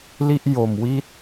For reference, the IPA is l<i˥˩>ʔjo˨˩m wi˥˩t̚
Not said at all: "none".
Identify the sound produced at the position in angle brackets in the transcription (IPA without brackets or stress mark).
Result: i˥˩